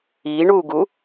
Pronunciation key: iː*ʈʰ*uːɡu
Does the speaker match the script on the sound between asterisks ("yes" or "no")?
no